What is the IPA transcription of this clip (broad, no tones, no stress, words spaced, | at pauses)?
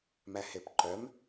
mæhepǃœm